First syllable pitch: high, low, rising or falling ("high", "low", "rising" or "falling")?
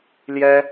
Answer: high